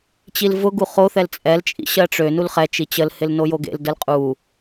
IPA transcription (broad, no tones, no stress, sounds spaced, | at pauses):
t͡ɕ i l v ʊ ɡ u χ o θ ɛ l t͡sʼ ɛ l t͡ʃʼ ḭ ɕ ɜ ʈ͡ʂ ø n u l χ ɛ t͡ʃ i t͡ɕ ə l h ɪ l n o j o ɡ ḛ l d ə l qʼ u